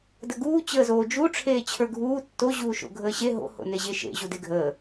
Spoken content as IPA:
d ə ɡ uː t͡ɕ əː z oː d͡ʒ u ʈ͡ʂʰ eː t͡ɕʰ ə˞ ɡʱ uː tː o ʑ uː ʃ o̰ ɡʱ əː ɕ e ɦ o̰ h o̰ n e ʑ e ʃ ḛ ʑ u d e ɡʱ əː

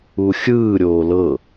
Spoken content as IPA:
u xʲ ɯː ɾʲ oː l ɤ

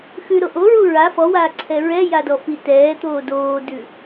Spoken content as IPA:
x ʉ ɾ o ʔ o ɹ u ɹ a f ɔ w aː ǀʰ ɛ ɹ ɛ j a d ɔ f i t ɛː t̪ oː d oː d ʉ

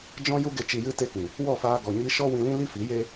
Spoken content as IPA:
d͡ʒ ɔ̃˦ j u˦ ɡ e˧ t͡ʃ i˨ j ɨ˧ t e˧ k ĩ˨ | w ɔ˦˨ f aː˧ ɡ ɔ˨ ɲ i˧ ʃ ɔ˦ w ĩ˧ l ĩ˦ l i˦ f i˨˦ j e˦

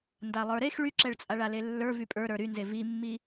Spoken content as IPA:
n d a lˠ ə˞ ɾ e x ɭ y ǁ ɛ ɭ t͡sʼ a ɭ a l e lː ə˞ v y pʼ ə˞ ɾ ə˞ ɾ y n z e v i mː i

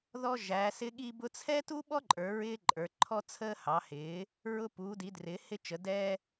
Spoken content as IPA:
ð ɔ˥ ʒ æ˨˥ s ɪ˥ ɠ i˥ b ʊ˥ t͡sʰ ɛ˥ t u˥ ɓ ɔ˥ ǃʼ ə˞˨˥ ɹ ɪː˥ ǃʼ ə˞˨˥ ǃʰ ɔ˥ t͡sʰ əː˥ h ɑ˨˥ h ɪː˨˥ | ɹ ʊ˥ p uː˨˥ d i˨˥ d r ɪː˨˥ h ɪ˥ t͡ʃ ə˨˥ d ɛ˥

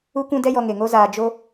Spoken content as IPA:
u˦ kʷ ũ˦ d ɛ˦ j ɔ˧ ŋ e˨ ŋ o˦ z aː˧ d͡ʒ o˦

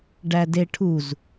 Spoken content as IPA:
ɖ æ d e ʈʰ u z

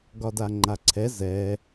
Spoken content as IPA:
ɡ ɒ d a ŋ͡ǃ a ǀʰ ɛ z ɛ

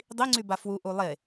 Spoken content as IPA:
dˤ i ŋ͡ǀ y b a f w u ʔ u lˠ e

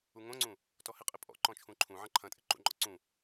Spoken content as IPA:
u ŋ õ ŋ͡ǀ ũ | t ɔ h ɪ qʼ ɪ pʼ ɔ̰ ǃ ɔ̃ t͡ʃʰ ũ ǃʰ ũ ʕ ɐ̃ ǃʰ ɐ̃ tʼ ɪ ǃ ṵ ŋ͡ǃ ɔ̰ ǀ ũ

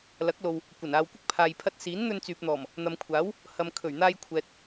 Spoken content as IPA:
l ɐ˨˥ k̚ l o˨ w | kʷ ɐ˨˩ n aː˨ w kʷ ɪ˥ k̚ pʰ aː˨ j pʰ ɐ˧ t̚ s iː˨˥ n n̪ ɵ˧ n t͡s yː˨ p̚ n̪ ɔː˨˩ m | n̪ ɐ˨ m kʷʰ aː˨˥ w | h ɐ˨ m kʰ ɵ˨˩ ɥ n̪ aː˧ j kʷʰ ɛː˨ t̚

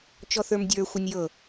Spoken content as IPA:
t͡ʃ ɔ θ ə˞ m dʲ ə˞ xʷ ɐ nʲ j ɤ

